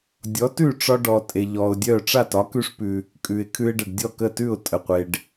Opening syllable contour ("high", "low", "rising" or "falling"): rising